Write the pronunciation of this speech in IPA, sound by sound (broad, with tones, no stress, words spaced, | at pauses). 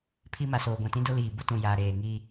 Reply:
pʰi˦ ma˨soː˨ɡʷã˨ tĩ˦dʊ˦liː˨bʊ˦ tũ˨ jaː˨ɾeː˨ŋiː˦